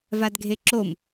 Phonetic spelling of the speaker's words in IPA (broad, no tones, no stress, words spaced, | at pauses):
vadɡʱeǁom